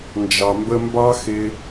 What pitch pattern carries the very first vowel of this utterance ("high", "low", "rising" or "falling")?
low